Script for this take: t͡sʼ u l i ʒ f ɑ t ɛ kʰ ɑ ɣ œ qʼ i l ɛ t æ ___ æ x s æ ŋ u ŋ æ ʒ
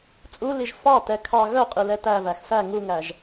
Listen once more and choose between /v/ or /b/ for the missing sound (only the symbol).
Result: v